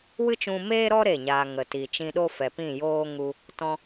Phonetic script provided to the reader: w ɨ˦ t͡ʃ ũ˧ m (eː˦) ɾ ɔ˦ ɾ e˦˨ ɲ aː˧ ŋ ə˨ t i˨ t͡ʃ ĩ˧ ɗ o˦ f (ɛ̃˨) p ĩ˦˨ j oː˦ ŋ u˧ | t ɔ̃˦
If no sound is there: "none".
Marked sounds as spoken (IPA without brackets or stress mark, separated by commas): eː˦, ɛ˨